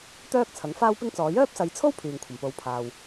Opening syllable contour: high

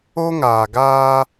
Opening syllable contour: high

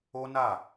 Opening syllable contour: high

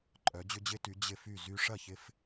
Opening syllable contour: rising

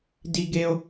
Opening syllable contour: high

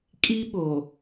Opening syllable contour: high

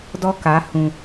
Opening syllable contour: high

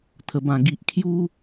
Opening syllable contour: low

